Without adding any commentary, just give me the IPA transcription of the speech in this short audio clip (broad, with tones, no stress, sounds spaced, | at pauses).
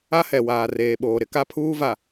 a˦ h ɛ˨ w aː˨ r eː˨ ɓ oː˨ ɾ ɪ˦ k a˦ pʰ uː˦ v a˨